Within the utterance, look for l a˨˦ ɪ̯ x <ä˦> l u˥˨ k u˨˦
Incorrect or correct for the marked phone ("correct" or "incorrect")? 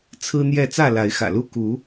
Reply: incorrect